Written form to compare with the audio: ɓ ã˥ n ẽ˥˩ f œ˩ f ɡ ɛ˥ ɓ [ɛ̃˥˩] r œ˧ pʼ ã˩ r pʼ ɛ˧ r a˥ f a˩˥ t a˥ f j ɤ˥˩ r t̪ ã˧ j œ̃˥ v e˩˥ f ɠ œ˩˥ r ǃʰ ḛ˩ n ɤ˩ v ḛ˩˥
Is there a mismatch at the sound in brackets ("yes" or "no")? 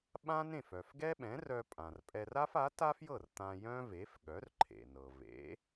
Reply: yes